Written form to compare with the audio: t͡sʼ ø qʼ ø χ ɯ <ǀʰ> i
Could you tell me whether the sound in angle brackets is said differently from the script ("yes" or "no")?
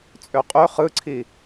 no